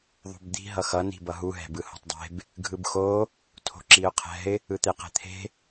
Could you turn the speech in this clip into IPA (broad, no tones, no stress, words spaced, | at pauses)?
ðˤṳbd̪i̤ ɦʌxʌ ni̤bʌɦu ɦɛ̤bɯho̤tˤdˤe̤b | ɡʱɯbxo | tʰo̤ǁiʊ̯qʰɛ̤ɪ̯ | ɯt̪eqɛ̤t̪ʰe̤